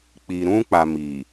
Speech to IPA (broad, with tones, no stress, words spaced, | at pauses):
k͡pi˨ɾũ˦k͡pa˨ miː˨